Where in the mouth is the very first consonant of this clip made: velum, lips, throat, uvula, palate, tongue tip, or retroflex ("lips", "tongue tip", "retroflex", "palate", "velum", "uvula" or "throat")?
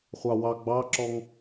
uvula